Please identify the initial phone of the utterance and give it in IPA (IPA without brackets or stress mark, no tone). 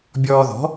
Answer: bʲ